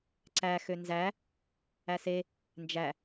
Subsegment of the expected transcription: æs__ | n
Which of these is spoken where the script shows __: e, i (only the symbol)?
e